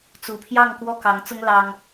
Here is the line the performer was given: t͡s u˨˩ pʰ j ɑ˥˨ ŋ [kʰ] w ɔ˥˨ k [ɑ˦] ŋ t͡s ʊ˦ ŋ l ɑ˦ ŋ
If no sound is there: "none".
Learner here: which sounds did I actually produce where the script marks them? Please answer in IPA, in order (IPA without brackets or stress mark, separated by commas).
k, ɑ˨˦